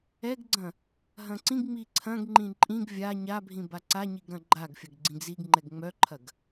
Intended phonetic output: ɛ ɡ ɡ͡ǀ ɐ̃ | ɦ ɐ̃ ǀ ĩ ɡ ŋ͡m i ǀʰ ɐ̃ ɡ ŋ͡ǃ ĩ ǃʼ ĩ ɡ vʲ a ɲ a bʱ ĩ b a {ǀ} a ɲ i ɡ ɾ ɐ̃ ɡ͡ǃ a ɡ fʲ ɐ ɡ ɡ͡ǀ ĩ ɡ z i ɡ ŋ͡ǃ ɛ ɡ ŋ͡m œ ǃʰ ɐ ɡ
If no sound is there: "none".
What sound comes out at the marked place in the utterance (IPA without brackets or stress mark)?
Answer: ǀ